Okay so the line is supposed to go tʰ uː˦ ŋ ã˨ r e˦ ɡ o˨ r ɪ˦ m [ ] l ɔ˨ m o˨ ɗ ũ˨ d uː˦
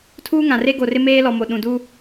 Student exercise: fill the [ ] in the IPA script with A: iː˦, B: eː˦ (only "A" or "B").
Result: B